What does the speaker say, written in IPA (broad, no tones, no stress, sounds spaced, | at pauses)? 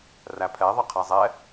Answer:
r æ pʰ ɛ ðˤ ʌ qʰ æ zˤ ɛ